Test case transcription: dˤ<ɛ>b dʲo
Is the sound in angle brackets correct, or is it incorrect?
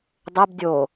incorrect